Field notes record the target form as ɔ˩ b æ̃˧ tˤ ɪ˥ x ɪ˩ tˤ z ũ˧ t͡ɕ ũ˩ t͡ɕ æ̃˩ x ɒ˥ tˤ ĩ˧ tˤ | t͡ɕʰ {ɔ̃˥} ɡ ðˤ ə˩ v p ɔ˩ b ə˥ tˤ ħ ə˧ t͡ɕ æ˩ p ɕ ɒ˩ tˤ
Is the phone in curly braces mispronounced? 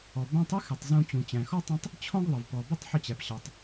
no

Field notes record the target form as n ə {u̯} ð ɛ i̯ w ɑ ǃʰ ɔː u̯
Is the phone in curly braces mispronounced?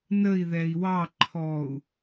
yes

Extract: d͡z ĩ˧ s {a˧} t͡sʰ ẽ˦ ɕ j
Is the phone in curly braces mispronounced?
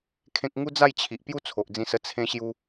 yes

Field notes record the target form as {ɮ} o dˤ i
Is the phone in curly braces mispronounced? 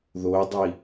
yes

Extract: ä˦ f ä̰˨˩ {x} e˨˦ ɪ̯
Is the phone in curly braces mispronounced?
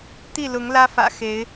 no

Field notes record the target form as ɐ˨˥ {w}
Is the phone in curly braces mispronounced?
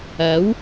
no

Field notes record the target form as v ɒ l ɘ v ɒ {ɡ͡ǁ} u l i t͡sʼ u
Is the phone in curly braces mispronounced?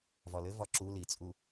yes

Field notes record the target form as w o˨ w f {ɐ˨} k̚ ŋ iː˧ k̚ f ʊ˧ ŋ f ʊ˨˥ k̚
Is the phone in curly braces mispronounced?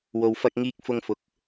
yes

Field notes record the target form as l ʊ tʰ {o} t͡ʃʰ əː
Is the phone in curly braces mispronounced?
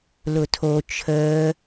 no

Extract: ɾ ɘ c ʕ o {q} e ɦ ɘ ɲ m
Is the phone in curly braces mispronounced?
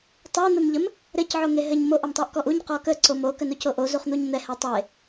yes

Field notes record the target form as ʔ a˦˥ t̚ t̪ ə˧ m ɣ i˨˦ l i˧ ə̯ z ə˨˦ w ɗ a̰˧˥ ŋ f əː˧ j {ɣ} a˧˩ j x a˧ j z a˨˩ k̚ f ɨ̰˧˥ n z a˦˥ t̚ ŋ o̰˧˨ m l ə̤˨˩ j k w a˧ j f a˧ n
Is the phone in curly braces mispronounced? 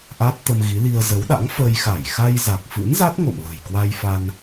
yes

